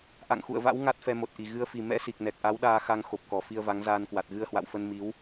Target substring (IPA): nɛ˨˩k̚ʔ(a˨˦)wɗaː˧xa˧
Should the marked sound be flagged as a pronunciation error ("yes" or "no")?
no